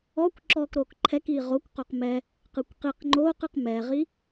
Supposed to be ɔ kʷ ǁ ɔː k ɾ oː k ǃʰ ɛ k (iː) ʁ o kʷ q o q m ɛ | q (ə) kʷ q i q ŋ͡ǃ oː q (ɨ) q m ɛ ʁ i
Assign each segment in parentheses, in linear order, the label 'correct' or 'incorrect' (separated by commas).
correct, incorrect, correct